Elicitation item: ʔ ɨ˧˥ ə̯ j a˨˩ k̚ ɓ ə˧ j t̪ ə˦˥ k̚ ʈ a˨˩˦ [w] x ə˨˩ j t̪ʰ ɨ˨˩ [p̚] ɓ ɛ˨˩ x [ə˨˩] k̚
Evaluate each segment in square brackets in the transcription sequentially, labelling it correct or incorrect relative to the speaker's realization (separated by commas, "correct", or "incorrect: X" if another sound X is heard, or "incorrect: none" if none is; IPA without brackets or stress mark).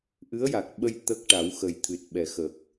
correct, incorrect: t̚, correct